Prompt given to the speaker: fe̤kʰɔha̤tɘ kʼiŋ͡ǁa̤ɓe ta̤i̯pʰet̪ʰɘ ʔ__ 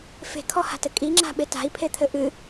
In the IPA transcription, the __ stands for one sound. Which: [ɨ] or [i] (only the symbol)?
ɨ